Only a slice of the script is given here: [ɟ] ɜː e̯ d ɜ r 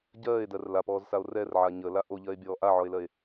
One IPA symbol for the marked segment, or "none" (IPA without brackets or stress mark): ɟ